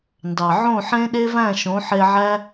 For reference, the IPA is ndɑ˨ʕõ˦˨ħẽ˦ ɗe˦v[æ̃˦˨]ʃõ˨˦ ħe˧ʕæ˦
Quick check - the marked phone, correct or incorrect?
correct